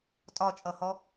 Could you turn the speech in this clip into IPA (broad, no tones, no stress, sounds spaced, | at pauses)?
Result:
tʼ ɒ t͡ʃʼ ʌ h ɔ